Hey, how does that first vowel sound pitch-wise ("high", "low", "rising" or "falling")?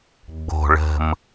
low